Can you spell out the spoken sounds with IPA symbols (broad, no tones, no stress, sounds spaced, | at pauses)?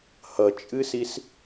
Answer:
h ʌ t͡ʃʼ ɨ s i s